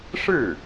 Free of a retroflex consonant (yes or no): no